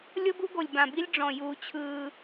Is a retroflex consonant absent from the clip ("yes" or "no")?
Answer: no